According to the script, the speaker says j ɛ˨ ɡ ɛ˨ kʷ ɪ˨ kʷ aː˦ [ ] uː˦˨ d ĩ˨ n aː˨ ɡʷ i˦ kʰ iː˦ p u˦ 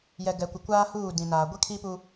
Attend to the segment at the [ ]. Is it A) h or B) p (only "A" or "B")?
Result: A